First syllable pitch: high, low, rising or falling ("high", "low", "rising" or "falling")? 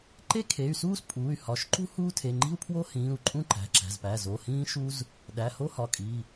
high